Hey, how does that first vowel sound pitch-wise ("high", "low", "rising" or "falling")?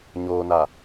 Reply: low